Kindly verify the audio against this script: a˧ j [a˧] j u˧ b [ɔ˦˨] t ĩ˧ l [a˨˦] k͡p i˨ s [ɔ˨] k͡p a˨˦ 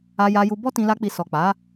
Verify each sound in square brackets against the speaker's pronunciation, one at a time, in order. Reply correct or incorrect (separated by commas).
correct, incorrect, incorrect, correct